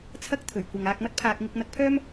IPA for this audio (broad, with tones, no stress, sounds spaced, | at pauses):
t͡sʰ ɐ˥ k̚ t̪ʰ ɵ˨˩ ɥ kʷ ɐ˨ ŋ aː˧ k̚ m ɐ˥ t̚ pʰ aː˧ k̚ ŋ ɪ˧ k̚ n̪ ɐ˧ k̚ pʰ œː˥ m